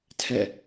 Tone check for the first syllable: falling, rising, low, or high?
falling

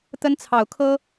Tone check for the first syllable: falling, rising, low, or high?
high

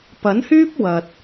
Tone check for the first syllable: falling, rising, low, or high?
rising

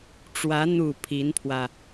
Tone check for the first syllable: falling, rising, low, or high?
rising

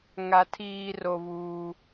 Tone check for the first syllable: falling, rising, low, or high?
high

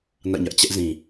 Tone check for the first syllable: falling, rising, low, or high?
falling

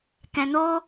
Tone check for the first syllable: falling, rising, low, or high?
low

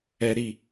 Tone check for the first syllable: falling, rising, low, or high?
high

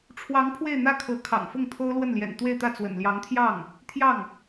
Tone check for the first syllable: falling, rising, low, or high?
rising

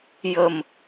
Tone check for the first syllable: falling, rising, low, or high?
low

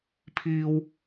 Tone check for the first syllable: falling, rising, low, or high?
high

